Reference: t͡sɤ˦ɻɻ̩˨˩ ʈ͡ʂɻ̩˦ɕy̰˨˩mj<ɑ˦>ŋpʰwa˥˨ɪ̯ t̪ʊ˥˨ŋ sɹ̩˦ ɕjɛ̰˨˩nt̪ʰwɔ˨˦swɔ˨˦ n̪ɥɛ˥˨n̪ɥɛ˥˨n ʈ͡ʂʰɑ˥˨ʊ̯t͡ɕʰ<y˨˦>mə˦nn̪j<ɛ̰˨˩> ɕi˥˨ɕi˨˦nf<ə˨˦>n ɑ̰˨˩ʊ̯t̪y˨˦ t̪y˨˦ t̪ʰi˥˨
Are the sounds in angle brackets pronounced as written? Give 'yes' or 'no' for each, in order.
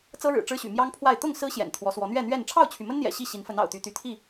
yes, no, yes, yes

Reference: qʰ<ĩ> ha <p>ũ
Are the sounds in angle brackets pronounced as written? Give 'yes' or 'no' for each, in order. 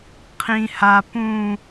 yes, yes

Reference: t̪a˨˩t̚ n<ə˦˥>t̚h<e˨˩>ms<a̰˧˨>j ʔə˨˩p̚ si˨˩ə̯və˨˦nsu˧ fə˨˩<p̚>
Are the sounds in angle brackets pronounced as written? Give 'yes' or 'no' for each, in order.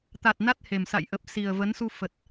no, yes, yes, no

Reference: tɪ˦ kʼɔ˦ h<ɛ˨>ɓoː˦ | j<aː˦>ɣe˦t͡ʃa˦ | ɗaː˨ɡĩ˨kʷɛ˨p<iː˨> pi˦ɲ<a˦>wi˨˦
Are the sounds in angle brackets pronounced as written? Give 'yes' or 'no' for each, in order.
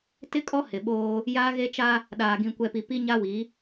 no, yes, no, yes

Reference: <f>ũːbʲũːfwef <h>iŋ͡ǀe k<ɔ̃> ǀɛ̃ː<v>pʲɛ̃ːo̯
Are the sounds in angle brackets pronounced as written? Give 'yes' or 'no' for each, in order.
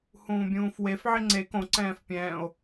no, no, no, no

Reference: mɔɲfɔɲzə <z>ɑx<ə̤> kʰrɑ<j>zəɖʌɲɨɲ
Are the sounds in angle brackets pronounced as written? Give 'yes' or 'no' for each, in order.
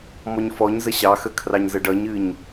no, no, no

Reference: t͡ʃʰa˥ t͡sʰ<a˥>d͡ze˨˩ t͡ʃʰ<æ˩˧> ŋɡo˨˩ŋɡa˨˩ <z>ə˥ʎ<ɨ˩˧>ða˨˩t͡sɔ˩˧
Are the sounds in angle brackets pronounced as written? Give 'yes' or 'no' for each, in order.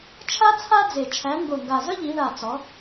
yes, yes, yes, no

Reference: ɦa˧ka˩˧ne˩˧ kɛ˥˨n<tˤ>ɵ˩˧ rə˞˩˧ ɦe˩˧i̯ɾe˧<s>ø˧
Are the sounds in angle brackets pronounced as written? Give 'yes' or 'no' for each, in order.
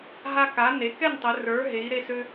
yes, yes

